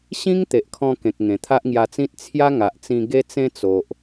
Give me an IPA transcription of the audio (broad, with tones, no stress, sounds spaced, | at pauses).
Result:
ɕ ĩ˦ ŋ t̪ e˨ ʔ kʰ ɔ̃˧ k ẽ˨ k̚ ŋ ẽ˨˩ t̪ʰ a˦ ʔ ŋ j a˧ t͡s ĩ˦ t̚ t͡sʰ j a˦ ŋ a˨ ʔ t͡s ĩ˧ ɡ e˧ t͡s ẽ˧ t͡s o˨ ʔ